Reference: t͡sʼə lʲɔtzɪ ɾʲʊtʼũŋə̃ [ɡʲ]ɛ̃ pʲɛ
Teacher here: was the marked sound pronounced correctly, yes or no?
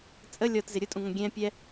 yes